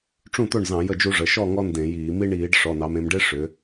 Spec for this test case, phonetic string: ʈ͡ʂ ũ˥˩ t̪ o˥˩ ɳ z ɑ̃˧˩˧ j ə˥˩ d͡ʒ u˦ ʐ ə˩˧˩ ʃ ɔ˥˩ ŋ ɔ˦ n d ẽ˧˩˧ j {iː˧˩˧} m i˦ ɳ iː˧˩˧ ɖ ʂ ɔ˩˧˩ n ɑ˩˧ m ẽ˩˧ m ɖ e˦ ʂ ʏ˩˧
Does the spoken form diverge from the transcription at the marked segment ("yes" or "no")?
no